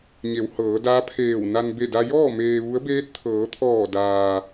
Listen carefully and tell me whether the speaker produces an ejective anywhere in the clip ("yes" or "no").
no